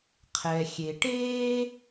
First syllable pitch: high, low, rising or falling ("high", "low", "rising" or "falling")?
low